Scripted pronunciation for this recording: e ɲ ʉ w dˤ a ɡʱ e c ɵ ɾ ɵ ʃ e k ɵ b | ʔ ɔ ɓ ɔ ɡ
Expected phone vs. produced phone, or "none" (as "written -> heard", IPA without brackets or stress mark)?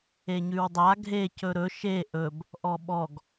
k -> ʔ